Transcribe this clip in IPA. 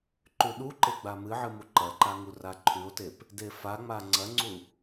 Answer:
ǃʉɗuǃe ɡ͡bamɨʕɨ muǃɐǃa ŋuraǃʰʉo̯tep | defaŋ͡ma ŋ͡ǀɐŋ͡ǀu

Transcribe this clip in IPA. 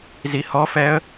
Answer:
zihɔfɛə̯

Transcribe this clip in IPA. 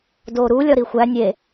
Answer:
doːɾuːlʲɒ ɾixʷæ nʲe

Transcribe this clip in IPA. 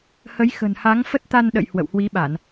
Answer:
hə˨˦jxə̤˨˩n ha˨˦ŋfə˦˥t̚ t̪a˧n ɗə̰˧˨j hwə̰˧˨w hwi˨˦ɓa˧˩˨n

